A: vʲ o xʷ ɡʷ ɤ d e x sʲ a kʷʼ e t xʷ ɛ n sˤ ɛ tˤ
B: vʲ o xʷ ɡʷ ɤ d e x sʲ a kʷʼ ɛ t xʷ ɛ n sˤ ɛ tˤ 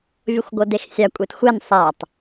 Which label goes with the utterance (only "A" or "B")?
A